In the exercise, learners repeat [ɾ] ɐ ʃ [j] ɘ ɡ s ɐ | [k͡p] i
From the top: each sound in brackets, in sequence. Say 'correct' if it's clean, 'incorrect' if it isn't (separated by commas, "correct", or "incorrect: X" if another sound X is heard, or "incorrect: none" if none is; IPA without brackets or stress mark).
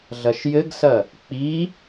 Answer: incorrect: ɮ, correct, correct